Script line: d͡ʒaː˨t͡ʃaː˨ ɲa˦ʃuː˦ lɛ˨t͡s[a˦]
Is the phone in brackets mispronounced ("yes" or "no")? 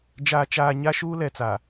yes